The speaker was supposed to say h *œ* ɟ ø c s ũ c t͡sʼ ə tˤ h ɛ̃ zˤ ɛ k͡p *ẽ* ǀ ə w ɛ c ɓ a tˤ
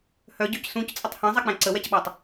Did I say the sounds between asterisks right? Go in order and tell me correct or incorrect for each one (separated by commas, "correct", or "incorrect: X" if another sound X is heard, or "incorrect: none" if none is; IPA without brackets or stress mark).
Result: correct, incorrect: ɛ̃